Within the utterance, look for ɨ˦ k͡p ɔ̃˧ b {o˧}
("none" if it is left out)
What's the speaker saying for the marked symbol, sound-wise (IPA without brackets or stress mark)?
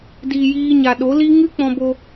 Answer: o˧